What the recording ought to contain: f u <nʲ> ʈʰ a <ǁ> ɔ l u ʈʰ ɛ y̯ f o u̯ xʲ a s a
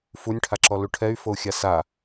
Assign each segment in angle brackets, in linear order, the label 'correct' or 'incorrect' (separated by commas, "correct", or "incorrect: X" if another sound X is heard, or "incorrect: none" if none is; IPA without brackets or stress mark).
correct, correct